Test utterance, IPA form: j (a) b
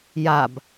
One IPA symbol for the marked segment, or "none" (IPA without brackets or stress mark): a